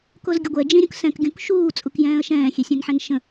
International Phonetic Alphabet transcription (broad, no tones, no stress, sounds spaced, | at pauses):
k o z ɡʲ ə ɡʷ ɛ d͡ʒ ĩ ɾʲ ũ k s ɛ̃ k ɡʲ ũ k ʃ uː t͡sʼ u k j ɛ̃ː ə̯ ʃ ɛ̃ː xʲ e sʲ ɛ̃ n ħ ɛ̃ n ʃ ə̃